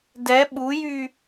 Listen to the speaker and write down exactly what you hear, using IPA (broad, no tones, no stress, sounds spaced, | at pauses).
d ɛ ɓ u j y